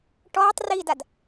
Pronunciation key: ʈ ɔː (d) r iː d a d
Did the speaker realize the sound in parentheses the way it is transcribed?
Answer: no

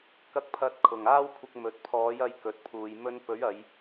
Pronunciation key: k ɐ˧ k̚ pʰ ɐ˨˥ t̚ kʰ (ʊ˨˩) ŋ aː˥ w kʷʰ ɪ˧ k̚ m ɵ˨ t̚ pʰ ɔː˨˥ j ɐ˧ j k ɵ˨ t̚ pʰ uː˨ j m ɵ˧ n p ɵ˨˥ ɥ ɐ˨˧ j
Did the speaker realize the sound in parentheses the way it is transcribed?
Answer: yes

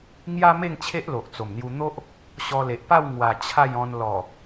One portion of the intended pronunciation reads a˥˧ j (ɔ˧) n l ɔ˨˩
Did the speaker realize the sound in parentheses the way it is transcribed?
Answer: no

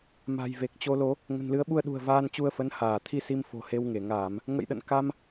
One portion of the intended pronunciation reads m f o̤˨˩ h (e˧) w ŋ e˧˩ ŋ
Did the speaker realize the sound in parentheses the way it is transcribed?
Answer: yes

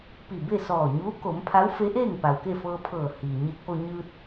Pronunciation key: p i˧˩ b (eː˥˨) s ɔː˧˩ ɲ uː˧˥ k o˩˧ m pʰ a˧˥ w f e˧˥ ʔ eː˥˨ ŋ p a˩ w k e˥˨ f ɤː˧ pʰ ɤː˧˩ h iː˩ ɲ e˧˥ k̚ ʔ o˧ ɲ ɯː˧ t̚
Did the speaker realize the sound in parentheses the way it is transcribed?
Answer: no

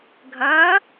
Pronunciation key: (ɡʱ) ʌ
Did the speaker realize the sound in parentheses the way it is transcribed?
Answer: yes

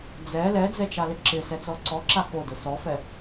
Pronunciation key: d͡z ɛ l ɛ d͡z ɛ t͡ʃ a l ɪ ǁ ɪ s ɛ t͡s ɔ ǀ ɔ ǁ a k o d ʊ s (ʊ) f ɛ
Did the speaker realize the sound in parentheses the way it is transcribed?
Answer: no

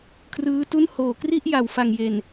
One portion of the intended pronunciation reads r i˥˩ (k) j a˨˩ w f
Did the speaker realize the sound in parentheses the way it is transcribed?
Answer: no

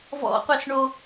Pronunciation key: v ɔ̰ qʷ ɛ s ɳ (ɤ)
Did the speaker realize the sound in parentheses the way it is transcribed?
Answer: no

